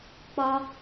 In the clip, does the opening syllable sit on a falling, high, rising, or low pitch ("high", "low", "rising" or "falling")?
low